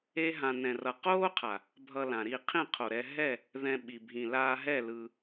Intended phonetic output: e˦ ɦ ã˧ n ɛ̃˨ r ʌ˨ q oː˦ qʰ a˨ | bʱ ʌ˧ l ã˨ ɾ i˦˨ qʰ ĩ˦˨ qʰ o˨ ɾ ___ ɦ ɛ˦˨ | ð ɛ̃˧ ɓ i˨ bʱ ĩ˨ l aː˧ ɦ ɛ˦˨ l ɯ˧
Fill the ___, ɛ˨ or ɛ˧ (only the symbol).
ɛ˧